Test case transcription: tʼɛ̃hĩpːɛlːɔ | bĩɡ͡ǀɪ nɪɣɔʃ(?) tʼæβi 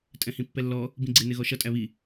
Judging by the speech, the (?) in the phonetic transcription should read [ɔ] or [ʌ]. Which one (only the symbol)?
ʌ